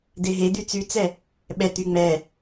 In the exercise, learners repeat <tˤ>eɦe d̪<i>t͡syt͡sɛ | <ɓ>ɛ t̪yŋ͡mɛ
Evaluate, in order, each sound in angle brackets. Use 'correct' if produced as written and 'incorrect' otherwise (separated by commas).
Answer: incorrect, incorrect, correct